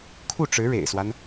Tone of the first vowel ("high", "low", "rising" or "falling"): falling